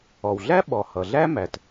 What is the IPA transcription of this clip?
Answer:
ɔ˩ w ɮ æ˥ ɓ ɔ˩ h ʌ˩ ɮ æ˥ m æ˩ t

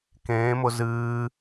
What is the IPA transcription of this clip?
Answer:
k ẽː m ʊ z ɨː

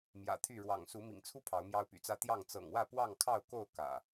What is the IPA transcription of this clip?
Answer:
m j ä̰˨˩ t̪ʰ y˥˨ ɻ w ɑ̰˨˩ ŋ s u˨˦ m ḭ˨˩ ŋ t͡sʰ u˦ pʰ ɑ˨˦ ʊ̯ m j ɑ˦ ʊ̯ p y̰˨˩ t͡s ä˦ t̪ j ɑ˥˨ ŋ t͡s ɤ̰˨˩ ŋ w ä˥˨ p w ɑ˥˨ ŋ kʰ ɑ˥˨ ʊ̯ k o˥˨ ʊ̯ k ä̰˨˩

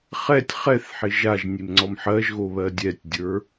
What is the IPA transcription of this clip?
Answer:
χ ɛ tʲ χ ɛ θ ħ ɪ ʒ a ʒ nʲ e m ŋ͡ǀ ɔ m ħ ɜ ʒ ɣ o β ɜ dʲ ɛ tʲ dʲ ə˞

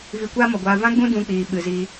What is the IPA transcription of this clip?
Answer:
v i˧ kʷ aː˦ m ɔ˨ ɡʷ aː˧ v ã˦ ɡ͡b ũ˦ d ũ˧ k͡p iː˨ ɓ ɨ˨ z i˧

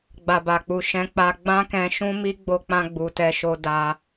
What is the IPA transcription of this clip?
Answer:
ɡ͡b a˨ b a˨ k͡p u˨ ʃ ɛ̃˧ k͡p a˧ ɡ͡b ã˦ k ɛ̃˧ ʃ ũ˦ m i˦ ɡ͡b o˦ k͡p ã˦ ɡ͡b u˧ t ɛ˦ ʃ o˦ d a˧

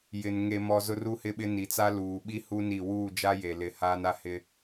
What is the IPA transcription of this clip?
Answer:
j ɪ˨ n ŋ e˨ m ɔ˨ z ʊ˦ r u˦ h ɪ˦ ɓ ɪ˦ n i˨ t͡s a˦ l uː˨ ɓ i˦ h u˦ n i˦˨ w uː˦˨ d͡ʒ a˦ j e˨ l ɪ˨˦ h aː˦ n a˦ h ɪ˦

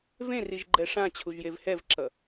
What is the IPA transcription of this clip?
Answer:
v ẽ r i ʒ ɡ͡ǃ ɛ ʂ ã t͡ɕʰ u ʒ j e v h ɛ v ǁ ʌ

